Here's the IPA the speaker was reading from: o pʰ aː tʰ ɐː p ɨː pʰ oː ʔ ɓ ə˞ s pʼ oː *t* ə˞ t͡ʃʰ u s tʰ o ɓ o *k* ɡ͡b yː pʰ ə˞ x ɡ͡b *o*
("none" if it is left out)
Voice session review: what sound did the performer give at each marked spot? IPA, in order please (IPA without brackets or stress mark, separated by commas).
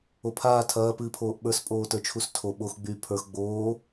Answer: t, x, oː